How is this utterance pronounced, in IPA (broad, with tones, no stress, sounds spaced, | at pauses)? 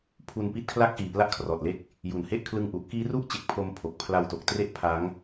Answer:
pʰ u˧ n p i˦˥ t̚ kʰ l a˥˩ k̚ ʔ iː˨˩ p l a˦˥ ʔ kʰ r ɔː˨˩ t̚ l e˦˥ k̚ | j u˨˩ n h e˥˩ ʔ kʰ l ɯ˧ ŋ ʔ u˨˩ ʔ k iː˦˥ r u˥˩ ʔ t͡ɕ e˨˩ k̚ pʰ o˧ m pʰ o˨˩ k̚ pʰ l a˧ w t o˨˩ k̚ t r e˦˥ ʔ pʰ a˦˥ ŋ